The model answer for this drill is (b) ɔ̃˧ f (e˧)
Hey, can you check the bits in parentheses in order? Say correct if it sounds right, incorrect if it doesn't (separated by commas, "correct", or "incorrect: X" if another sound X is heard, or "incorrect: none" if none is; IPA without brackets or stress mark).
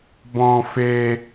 correct, correct